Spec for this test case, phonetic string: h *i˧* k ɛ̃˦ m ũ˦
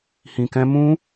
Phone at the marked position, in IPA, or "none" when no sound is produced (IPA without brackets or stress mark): ĩ˧